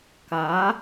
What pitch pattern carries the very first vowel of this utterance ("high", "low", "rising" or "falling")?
rising